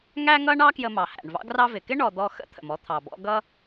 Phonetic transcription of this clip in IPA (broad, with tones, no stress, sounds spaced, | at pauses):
ŋ æ˥ ŋ ʌ˥ ɳ ɑ˥ k j ə˧ m ɑ˩ h æ̰˩ ɳ v ɑ̰˥ ɡ r ɑ˧ v ɪ˩ k ɪ˥ ɳ ɔ˧ d̪ ɔ˥ x ə̰˥ t̪ʰ ə̰˩ m ɔ˥ t̪ʰ ɑ˩ b ɔ̰˥ ɡ ʌ˥